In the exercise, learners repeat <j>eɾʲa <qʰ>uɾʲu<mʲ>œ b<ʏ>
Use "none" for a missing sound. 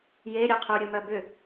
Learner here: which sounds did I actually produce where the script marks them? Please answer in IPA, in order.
j, qʰ, m, ʏ

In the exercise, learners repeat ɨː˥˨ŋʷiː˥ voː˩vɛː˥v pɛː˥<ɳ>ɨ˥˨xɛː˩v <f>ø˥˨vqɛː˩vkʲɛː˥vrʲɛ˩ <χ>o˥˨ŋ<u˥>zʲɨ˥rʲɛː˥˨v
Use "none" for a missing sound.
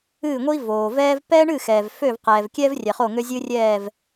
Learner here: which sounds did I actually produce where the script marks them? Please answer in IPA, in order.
ɳ, f, χ, ø˥

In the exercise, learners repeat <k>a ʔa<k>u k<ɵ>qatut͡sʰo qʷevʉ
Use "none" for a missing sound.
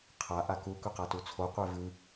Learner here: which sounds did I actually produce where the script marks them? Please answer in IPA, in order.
qʰ, k, ɵ

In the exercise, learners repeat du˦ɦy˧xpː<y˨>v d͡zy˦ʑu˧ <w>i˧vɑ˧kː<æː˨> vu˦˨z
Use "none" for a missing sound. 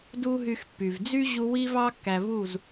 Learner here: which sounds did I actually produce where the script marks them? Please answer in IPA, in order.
y˨, w, æ˨

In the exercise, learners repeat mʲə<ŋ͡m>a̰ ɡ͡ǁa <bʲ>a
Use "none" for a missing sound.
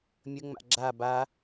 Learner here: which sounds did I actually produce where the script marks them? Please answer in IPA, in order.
ŋ͡m, b

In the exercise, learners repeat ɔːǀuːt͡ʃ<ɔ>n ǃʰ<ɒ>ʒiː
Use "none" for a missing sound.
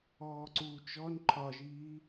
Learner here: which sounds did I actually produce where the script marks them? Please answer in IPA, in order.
ɔ, ɒ

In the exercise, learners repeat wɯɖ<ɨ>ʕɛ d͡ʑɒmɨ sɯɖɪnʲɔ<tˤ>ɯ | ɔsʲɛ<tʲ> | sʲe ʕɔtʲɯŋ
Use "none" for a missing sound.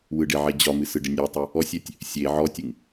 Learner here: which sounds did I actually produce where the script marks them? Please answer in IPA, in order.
ɪ, tˤ, tʲ

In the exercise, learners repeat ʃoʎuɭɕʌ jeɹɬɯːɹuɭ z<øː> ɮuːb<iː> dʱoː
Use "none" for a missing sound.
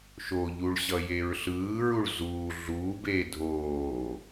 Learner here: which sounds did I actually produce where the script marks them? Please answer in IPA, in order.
uː, eː

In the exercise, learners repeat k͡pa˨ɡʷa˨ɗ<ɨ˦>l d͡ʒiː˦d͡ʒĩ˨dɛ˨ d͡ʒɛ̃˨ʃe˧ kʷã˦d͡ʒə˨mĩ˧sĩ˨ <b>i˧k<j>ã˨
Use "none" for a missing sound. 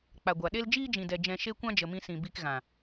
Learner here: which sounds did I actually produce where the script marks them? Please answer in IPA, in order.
e˦, b, ɣ

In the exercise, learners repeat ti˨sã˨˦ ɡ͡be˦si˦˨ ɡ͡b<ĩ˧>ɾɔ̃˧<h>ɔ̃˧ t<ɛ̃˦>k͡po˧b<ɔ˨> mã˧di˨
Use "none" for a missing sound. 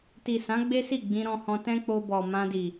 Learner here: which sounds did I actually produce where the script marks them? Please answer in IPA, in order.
ĩ˧, h, ɛ̃˦, ɔ˨

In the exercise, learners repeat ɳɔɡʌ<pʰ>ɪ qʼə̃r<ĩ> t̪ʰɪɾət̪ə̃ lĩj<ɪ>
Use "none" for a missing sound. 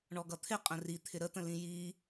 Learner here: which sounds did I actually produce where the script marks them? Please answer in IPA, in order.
t̪ʰ, i, i

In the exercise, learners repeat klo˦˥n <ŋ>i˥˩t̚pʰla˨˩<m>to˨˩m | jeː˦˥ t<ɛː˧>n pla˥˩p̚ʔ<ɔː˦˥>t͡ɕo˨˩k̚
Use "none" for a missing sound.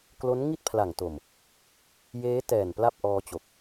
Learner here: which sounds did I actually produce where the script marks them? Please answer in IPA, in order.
ŋ, ŋ, ɛː˨˩, ɔː˧

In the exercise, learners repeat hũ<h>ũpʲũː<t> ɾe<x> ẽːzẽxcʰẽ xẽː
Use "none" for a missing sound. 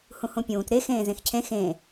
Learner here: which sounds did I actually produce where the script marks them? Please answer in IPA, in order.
h, t, x

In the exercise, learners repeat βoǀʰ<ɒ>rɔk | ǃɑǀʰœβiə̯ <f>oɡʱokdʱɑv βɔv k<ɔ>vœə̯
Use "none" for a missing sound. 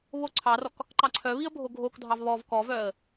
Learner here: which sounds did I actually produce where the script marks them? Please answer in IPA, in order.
ɑ, bʱ, ɔ

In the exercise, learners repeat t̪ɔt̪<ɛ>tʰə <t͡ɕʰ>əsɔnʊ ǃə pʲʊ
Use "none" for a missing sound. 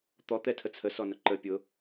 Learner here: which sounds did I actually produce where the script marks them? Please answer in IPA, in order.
ɛ, t͡sʰ

